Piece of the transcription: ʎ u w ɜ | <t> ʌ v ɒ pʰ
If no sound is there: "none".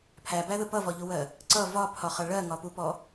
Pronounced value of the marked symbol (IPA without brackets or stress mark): ǀ